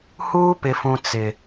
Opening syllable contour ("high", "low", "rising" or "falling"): high